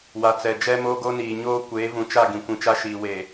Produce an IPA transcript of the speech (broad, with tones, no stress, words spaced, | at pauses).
wa˨t͡sɛ˨ d͡ʒɛ˦moː˦ɡo˦niː˨ ɲoː˦ kʷeː˨˦vũ˨t͡ʃa˦˨ ɡĩ˨kʷĩ˨t͡ʃa˦ʃiː˨ weː˨